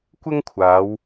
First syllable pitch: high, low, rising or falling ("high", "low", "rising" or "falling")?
high